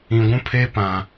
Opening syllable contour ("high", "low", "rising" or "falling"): low